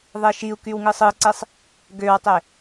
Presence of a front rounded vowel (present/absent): present